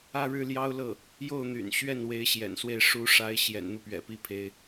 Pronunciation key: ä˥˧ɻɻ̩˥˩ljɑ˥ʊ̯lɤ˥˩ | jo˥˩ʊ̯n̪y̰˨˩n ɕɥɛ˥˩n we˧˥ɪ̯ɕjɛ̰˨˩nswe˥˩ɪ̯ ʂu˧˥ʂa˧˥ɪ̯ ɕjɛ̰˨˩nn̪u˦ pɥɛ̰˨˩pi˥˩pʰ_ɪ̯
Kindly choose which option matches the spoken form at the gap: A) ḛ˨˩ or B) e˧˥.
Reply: B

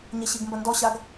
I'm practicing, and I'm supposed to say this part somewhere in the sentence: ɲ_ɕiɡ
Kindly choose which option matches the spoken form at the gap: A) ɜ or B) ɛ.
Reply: B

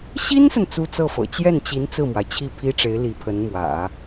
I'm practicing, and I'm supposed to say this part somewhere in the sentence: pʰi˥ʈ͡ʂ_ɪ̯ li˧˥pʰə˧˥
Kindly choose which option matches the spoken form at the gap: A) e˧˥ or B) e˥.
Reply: A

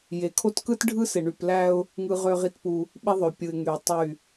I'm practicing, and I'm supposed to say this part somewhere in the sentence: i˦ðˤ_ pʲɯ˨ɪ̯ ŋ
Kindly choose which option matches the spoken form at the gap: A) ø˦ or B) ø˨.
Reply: B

